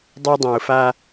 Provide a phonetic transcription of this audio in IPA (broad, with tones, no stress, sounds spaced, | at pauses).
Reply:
dˤ ɛ˦ dˤ ẽ˨ ʊ̯ f a˦